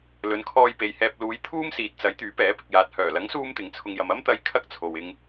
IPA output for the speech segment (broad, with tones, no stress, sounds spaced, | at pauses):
l ɵ˨˧ n kʰ ɔː˧ j p e˨ j h ɛː˧ p̚ l uː˨˧ j t̪ʰ uː˥ m s iː˨ t̚ t͡s ɐ˨˥ j t̪ yː˨˥ p ɛː˨˥ p ɪ˨ k̚ j aː˨ t̚ h œː˨˩ l ɐ˨˥ ŋ s uː˧ m t̪ ɪ˨ ŋ t͡sʰ ʊ˧ ŋ j ɐ˧ m ɐ˥ m t̪ ɐ˧ j kʰ ɐ˥ k̚ t͡sʰ o˨ w ɪ˧ ŋ